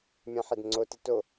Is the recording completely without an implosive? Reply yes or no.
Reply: yes